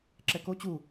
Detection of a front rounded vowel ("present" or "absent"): absent